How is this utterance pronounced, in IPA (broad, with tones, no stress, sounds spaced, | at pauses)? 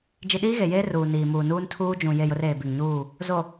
d͡ʒ i˨ ɗ iː˦ ɣ e˨ j eː˦ r uː˨ n iː˨ m uː˨ n uː˦ n tʰ uː˦ d͡ʒ ũ˨ j e˦˨ j ʊ˦ r eː˨ b i˨ ŋ ɲ uː˦˨ | z o˨